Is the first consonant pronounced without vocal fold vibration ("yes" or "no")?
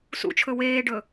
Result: yes